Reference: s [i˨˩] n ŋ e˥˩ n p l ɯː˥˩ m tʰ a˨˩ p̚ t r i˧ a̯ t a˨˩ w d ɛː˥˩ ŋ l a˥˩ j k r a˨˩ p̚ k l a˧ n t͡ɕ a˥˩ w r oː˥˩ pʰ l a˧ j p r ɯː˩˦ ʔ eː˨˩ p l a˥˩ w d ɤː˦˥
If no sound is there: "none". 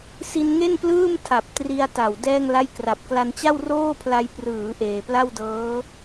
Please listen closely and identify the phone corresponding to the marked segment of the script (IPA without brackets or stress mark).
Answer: i˧